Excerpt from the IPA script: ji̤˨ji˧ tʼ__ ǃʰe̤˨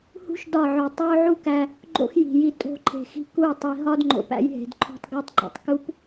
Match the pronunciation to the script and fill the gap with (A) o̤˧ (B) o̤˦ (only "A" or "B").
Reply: A